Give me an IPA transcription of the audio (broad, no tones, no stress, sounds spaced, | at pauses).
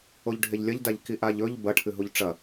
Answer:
o ʎ ɖʱ e ʎ lʲ ɐ ʎ d a ʎ k i ʔ a ʎ ɵ ʎ b ɐ ʈʰ ɨ ɦ u ʎ ʈ͡ʂ ɐ